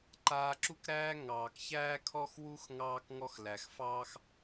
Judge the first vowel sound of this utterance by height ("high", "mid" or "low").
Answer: low